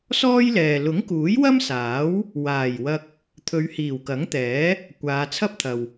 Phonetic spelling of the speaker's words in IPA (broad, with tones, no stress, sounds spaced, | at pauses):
s ɔː˥ j l ɛː˨ l ʊ˨˥ ŋ k uː˨˥ j w ɐ˥ m s aː˨˥ w | w aː˨˩ j w ɐ˧ k̚ | t̪ʰ ɵ˨˧ ɥ h iː˨˩ w k ɐ˨˥ ŋ t̪ ɛː˨˥ | kʷ aː˨˧ t͡sʰ ɐ˥ p̚ t̪ʰ ɐ˨ w